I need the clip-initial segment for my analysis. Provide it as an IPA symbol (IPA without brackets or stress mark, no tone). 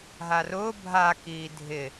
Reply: ɦ